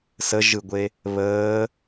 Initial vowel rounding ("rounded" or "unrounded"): unrounded